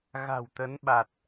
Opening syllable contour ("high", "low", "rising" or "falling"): low